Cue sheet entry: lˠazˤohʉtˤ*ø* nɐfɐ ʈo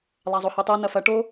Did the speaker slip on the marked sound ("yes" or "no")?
yes